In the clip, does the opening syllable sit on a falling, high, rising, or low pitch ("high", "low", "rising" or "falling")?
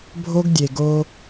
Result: high